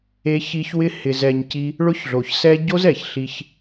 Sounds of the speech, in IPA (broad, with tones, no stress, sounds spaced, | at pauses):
e˧ ç i˧ ç w ɪ˦ h ɪ˧ z ɛ˧ ɲ c i˦ | ɭ ʊ˦ ç ɮ o˨ ç s ɛ˦ ɟ o˦ z ɛ˨ ç ɬ i˧ ç